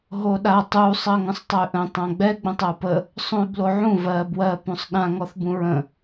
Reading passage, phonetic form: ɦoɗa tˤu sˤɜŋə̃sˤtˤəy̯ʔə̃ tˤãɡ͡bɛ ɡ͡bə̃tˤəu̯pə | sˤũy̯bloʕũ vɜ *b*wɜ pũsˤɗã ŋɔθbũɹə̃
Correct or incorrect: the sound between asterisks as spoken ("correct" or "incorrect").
correct